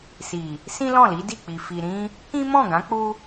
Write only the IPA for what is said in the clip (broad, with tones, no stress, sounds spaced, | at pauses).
s i˨ | s ĩ˦ l ɔ̃˦˨ l i˨˦ d i˦˨ k͡p i˨ f i˨ ɾ ĩ˧ | k ĩ˦ m ɔ̃˦˨ ɡ ã˨˦ k͡p u˦